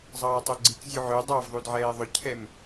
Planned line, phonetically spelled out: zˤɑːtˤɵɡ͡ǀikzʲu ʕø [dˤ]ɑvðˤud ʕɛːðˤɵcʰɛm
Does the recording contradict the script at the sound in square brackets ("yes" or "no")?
no